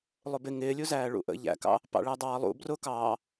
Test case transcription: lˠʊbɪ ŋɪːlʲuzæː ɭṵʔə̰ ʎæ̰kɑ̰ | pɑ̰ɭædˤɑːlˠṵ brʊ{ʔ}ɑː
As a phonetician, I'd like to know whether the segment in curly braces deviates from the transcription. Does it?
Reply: yes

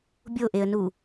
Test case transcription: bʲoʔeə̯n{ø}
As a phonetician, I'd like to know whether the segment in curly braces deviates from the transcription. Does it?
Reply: yes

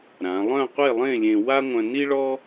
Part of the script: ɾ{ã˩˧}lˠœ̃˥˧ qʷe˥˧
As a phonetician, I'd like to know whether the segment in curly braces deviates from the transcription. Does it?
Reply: no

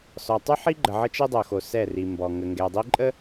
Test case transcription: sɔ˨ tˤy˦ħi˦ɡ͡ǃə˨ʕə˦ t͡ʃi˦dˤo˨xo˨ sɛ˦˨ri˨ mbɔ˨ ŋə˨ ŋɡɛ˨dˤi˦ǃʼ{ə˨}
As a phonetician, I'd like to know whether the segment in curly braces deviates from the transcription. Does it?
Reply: yes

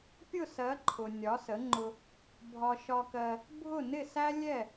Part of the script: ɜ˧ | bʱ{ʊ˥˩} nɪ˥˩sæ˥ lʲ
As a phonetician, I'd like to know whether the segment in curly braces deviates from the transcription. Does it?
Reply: no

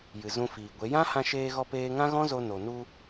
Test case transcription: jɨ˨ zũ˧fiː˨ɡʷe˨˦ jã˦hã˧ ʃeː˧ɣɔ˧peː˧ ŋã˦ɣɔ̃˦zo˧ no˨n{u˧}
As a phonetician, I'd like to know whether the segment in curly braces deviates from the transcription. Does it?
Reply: no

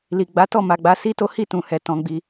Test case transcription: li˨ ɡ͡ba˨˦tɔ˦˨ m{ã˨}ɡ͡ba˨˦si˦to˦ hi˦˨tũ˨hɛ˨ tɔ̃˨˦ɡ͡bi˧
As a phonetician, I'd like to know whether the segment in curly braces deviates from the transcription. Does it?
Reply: yes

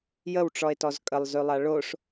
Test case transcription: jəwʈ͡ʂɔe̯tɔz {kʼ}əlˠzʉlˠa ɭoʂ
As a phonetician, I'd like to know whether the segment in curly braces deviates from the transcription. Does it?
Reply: no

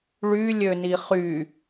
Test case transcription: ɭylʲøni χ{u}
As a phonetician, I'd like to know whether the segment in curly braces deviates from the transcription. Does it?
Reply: yes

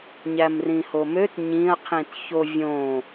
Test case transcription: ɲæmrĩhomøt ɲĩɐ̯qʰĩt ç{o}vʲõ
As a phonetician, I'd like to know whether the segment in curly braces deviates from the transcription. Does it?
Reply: no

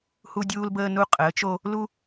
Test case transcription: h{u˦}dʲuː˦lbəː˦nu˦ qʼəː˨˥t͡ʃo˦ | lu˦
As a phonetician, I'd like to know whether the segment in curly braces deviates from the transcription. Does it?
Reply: no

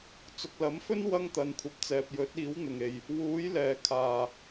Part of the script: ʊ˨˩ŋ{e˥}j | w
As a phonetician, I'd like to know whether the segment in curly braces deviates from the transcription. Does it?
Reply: yes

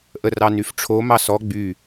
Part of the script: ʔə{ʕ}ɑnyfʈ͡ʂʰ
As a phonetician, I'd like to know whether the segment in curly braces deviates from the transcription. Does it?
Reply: yes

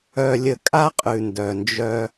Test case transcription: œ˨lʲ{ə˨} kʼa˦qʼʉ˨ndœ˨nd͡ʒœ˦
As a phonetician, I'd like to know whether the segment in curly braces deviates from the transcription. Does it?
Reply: no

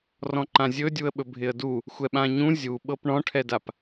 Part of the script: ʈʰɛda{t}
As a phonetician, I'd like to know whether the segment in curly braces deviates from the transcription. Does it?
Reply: yes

